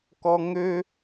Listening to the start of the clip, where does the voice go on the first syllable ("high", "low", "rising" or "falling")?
high